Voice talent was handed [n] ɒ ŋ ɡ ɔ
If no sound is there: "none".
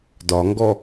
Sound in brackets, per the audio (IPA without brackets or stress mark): d